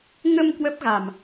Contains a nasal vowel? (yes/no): no